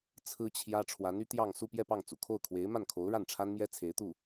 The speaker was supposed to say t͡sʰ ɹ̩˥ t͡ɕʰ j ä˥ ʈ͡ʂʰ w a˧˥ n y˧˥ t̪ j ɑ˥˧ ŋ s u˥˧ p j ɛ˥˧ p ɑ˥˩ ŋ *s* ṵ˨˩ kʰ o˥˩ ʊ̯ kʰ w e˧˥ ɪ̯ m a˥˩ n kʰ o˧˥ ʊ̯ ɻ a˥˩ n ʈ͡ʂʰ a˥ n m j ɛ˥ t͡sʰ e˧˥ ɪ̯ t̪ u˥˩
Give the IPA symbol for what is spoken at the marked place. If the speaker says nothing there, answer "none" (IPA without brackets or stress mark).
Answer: t͡s